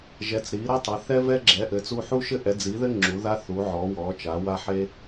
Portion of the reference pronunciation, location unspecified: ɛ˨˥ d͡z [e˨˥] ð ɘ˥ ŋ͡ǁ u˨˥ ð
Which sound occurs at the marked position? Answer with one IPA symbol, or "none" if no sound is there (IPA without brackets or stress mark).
i˨˥